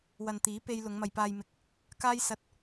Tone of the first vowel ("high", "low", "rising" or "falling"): low